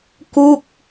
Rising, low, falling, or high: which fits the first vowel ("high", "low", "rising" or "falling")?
falling